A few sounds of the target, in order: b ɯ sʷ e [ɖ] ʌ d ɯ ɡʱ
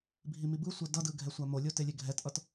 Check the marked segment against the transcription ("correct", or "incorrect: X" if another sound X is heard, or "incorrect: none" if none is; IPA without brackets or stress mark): incorrect: d